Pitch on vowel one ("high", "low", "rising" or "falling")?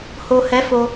low